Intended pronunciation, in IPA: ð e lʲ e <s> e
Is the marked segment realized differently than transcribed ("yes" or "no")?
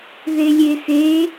no